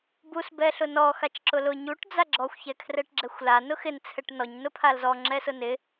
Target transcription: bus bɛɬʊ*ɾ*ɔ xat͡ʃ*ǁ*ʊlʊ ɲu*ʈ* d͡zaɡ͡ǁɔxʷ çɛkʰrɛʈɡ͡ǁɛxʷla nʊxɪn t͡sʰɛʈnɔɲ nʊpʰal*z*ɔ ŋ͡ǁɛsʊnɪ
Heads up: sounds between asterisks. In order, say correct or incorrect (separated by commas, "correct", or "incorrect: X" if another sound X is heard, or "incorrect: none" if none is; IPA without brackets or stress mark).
incorrect: n, correct, correct, correct